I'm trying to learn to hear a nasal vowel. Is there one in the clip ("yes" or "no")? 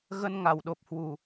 no